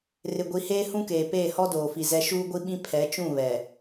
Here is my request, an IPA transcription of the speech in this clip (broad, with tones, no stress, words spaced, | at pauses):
rɪ˨ɡʷi˨heː˦ hũ˦keː˨ peː˦˨hɔ˦doː˨fi˨ zɛ˦ ʃuː˦ɡʷi˦ɓĩ˦ pʰɛ˨˦t͡ʃũ˦˨ βɛ˨